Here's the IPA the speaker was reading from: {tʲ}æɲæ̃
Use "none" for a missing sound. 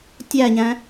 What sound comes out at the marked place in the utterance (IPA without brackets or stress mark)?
tʲ